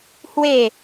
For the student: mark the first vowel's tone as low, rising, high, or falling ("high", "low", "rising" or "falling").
falling